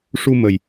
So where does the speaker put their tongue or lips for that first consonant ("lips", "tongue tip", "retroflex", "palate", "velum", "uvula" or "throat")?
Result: retroflex